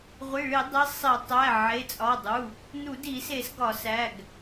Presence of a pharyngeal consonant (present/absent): present